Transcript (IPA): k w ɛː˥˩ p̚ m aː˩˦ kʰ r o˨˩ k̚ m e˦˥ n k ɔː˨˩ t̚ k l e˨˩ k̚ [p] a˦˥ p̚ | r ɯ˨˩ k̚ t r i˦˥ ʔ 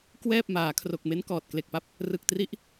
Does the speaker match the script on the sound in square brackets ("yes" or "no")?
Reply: yes